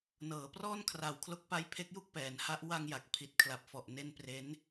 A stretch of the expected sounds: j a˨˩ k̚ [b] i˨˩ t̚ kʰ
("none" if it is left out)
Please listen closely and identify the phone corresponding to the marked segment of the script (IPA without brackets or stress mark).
pʰ